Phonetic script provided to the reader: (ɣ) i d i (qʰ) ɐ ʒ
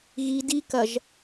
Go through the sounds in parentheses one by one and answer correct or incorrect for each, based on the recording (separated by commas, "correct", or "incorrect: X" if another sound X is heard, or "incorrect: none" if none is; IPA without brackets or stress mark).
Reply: correct, incorrect: k